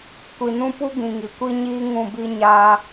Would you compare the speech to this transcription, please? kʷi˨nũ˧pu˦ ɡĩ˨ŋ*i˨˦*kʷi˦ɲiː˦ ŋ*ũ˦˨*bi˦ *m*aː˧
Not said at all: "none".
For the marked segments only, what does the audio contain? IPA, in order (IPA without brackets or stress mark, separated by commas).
i˨, ũ˦˨, ɲ